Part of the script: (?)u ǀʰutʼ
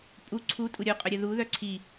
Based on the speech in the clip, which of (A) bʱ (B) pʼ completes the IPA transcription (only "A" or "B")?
B